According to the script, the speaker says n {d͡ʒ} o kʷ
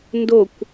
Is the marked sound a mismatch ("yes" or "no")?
yes